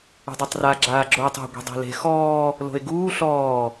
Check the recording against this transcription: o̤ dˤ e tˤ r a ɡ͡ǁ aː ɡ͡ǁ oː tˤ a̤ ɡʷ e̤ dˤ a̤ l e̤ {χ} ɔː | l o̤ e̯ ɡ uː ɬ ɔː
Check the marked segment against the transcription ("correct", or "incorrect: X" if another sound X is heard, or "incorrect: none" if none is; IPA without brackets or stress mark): incorrect: x